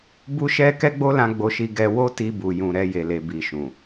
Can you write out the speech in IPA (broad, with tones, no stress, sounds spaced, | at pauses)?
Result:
b u˦ ʃ ɛ˦ k ɛ˦ ɡ͡b o˦ l ã˧ ɡ͡b o˧ ʃ i˧ ɡ ɛ˧ w o˦ t i˧ b u˨ j ũ˨ ɾ ɛ˧ j e˨ l e˨ b i˨ ʃ ũ˨